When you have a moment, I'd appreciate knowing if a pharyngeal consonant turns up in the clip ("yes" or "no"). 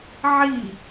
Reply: yes